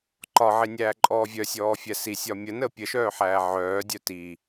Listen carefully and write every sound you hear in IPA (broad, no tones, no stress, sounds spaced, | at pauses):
ǃ ɒ ʕ i nʲ æː ǃʼ ɔː vʲ œ sʲ ɔː fʲ æ s i sʲ ɒ mʲ ə n əː pʲ ə ʃ œː ħ æː ʕ œː dʲ œ t i